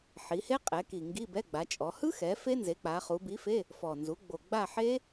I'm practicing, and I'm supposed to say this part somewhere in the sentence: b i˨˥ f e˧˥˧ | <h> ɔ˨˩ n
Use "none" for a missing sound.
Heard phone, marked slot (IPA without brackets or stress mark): f